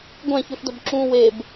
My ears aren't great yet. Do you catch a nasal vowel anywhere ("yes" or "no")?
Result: yes